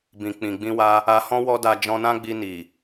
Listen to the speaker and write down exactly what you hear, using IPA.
b ĩ˨ k͡p ĩ˨ ɡ͡b ĩ˧ w a˧ | a˧ h ɔ̃˦ w ɔ˦ d a˧ d͡ʒ ɔ̃˧ n ã˦ ɡ͡b i˧ n i˨

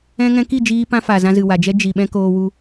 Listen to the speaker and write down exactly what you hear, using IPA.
ɛ̃˦ ŋ ɛ̃˧ k i˦˨ d͡ʒ iː˧ p ã˦ f a˨ z ã˧ z ɨ˨ w a˨ d͡ʒ ɛ˦ d͡ʒ i˨ ɓ ɛ̃˧ k oː˧ w u˧

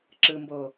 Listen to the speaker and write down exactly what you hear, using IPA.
ǁ ɯ m b o

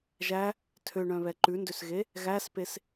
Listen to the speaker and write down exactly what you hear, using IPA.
ʒ æ | tʰ ø ɳ œ̃ β ɛ ǃ ʉ n d ø s ɣ e | ɣ æ s p e s

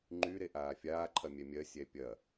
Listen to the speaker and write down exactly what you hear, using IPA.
ŋ͡ǃ y ɾ e ʔ aː fʲ aː ǃʰ ɐ mʲ ɛ mʲ ɜ sʲ ɛ pʲ ɐ

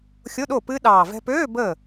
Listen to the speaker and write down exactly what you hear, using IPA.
xʲ o˧˥˧ ɗ o˥˩ p ɨ˦˥ ɗ ɑː˨˩ v ɛ̤˧ p øː˧˥˧ b ə˥˩

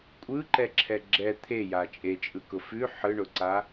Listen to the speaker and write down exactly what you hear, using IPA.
kʷʼ ɯ ǃ ɛ ǁʰ ɛ ɡ͡ǁ ɛ t̪ʰ e j a t͡ʃʼ e t͡ʃʼ ɯ k ʊ f ʉ ħ ɯ ɳ ʊ ǀ a

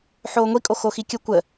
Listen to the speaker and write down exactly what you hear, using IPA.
ħ oː ŋʷ i kʼ o x o x i kʲ ə kʷ ə

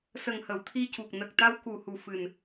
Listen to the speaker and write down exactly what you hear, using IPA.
s ə˨˩ ŋ h ə˨˩˨ w t̪ʰ i˧ c u˨˩ k̚ n ə˨˩ k̚ t̪ a˧ w k u˨˩ h u˨˩ f ɨ˨˩ n

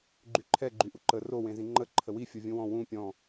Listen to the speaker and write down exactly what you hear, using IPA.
ɡ͡ǃ y ǃʰ ɛ ɡ͡ǃ y ʔ u ǃ ə r o w ẽ z ĩ ŋ͡ǃ ə ǃʰ ə w i fʲ o vʲ ũ w ɔ̃ w ũ pʲ ɔ̃

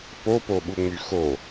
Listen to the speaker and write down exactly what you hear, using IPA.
p o p o ɓ u ŋ͡m y x o

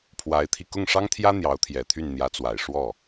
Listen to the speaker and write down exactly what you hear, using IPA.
pʰ w a˧˥ ɪ̯ t̪ʰ i˧ k ʊ˥˩ ŋ ʂ ɑ˥ ŋ t̪ʰ j ä˥ n̪ j ɑ˧˥ ʊ̯ t̪ʰ j ɛ˨˩ t̪ʰ y˥˩ n n̪ j ä˧˥ t͡s w a˨˩ ɪ̯ ʂ w ɔ˥˩

